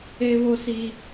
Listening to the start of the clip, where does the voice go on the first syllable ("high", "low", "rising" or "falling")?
high